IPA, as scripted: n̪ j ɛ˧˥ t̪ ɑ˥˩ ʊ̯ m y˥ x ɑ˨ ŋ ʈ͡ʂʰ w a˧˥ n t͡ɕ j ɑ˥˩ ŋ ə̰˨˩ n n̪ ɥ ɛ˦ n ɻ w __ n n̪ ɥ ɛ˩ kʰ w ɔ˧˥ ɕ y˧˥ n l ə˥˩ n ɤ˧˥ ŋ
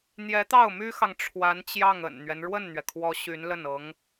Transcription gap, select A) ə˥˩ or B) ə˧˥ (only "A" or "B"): A